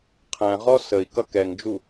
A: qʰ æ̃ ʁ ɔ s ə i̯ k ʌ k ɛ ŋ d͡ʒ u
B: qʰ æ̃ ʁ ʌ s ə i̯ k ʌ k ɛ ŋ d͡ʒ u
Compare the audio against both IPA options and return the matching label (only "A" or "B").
A